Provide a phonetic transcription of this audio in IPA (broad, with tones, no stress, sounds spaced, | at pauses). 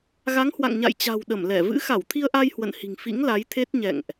ɣ a˨˦ ŋ h w a̰˧˨ ŋ ɲ a̰˧˨ j t͡ɕ a̤˨˩ w ɗ ə˧˩ m l ɛ˧˩ v ɨ̰˧˥ x a˧˩ w t̪ʰ i˧ ə̯ ʔ a˧ j h w ə̰˧˨ n h i̤˨˩ ŋ f ḭ˧˥ ŋ l a˨˦ j t̪ʰ e˦˥ t̚ ɲ ɛ̰˧˨ ŋ ʔ